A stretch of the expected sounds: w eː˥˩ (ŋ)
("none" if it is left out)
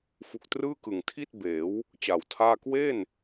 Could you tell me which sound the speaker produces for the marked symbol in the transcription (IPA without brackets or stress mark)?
n